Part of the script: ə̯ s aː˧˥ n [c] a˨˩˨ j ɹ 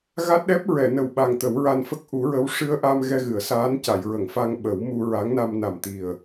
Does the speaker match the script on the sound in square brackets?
yes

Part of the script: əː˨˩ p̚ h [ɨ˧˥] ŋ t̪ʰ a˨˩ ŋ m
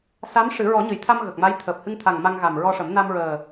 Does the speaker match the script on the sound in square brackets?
no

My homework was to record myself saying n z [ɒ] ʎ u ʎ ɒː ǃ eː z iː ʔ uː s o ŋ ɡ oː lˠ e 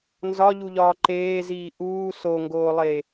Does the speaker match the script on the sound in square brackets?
yes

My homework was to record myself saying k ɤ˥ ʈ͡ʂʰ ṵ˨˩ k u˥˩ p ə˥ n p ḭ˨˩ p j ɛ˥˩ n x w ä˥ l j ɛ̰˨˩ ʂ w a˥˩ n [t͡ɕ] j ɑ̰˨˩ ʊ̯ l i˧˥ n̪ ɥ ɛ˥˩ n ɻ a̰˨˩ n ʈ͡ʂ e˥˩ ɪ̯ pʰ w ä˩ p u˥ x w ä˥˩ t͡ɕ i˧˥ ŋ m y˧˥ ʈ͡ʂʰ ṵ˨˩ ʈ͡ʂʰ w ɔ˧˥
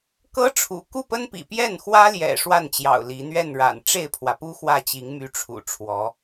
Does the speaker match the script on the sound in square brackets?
yes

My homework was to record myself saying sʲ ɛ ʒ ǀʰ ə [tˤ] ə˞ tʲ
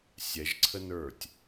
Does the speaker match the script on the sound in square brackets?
no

